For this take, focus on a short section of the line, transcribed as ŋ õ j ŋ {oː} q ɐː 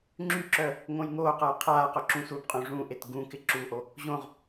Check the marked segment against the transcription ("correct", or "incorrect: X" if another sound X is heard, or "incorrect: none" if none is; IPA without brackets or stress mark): correct